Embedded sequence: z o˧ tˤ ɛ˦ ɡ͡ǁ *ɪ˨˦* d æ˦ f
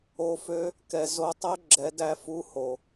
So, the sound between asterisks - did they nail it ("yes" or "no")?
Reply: no